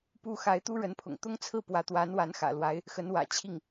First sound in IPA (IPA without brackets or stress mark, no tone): p